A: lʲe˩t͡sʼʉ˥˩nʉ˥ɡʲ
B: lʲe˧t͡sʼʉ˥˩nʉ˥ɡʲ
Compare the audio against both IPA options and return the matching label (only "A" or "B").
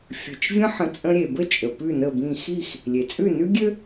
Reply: A